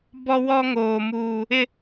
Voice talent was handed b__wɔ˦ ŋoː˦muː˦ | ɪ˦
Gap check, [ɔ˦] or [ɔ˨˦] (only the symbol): ɔ˦